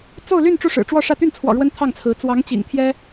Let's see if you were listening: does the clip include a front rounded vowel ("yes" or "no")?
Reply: yes